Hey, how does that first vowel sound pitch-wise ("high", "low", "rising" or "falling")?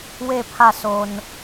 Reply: falling